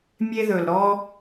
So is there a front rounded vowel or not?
no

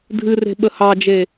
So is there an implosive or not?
yes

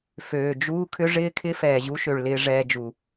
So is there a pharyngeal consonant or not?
no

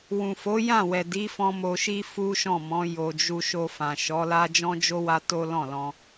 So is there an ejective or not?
no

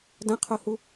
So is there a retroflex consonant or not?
no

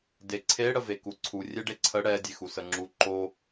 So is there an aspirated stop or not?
yes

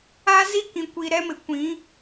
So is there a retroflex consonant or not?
no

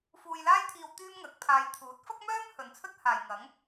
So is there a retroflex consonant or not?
no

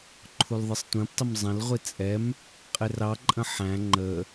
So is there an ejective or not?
yes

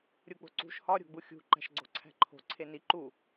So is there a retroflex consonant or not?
no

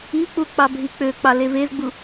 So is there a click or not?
no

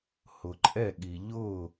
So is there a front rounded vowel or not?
no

